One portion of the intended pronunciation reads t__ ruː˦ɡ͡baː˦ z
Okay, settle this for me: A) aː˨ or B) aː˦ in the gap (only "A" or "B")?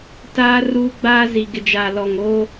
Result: B